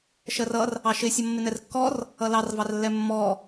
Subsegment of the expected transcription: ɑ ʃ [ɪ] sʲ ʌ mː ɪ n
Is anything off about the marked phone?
no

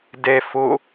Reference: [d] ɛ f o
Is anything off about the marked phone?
no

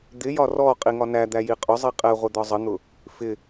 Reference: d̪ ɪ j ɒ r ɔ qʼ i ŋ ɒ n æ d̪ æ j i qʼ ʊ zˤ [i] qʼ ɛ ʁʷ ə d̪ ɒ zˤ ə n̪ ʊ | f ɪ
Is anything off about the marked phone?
no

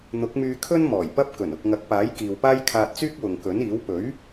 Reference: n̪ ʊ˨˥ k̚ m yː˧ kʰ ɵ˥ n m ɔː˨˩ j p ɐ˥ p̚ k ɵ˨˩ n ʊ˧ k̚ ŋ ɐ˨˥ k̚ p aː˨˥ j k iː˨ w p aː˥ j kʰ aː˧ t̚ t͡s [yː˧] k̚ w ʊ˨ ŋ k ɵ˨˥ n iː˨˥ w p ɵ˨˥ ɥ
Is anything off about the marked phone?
yes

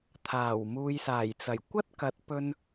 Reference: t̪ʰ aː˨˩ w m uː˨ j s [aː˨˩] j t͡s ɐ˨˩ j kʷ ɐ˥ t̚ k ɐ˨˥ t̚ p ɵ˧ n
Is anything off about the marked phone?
no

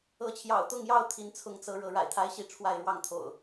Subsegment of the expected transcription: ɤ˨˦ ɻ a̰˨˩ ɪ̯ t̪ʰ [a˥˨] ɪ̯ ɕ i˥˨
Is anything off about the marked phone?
yes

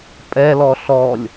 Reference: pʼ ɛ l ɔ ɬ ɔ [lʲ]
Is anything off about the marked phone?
no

